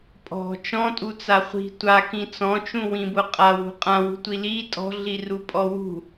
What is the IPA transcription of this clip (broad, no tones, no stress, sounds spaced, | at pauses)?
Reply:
pʼ ɔ̤ t͡ʃ ɔ̃ tʼ u t͡s a χʷ i̤ tʷ a k ĩ t͡s ɔ̃ t͡ʃ ũ w ĩ b ʊ qʼ a w ṳ qʼ ã w ṳ tʷ i l i tʼ ɔ̤ ɮ i r u pʼ ɔ w ṳ